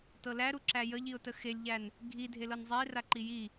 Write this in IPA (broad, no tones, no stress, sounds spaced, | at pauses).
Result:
t ɤ l æ ɾ u ǁ æ j ə ʎ i ʊ̯ t ə x e lʲ ʎ æ n | ɡʱ i dʱ e l ɤ n zˤ ɛ ɪ̯ r a ǃ i j i